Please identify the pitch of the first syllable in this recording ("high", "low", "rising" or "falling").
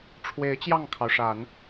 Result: rising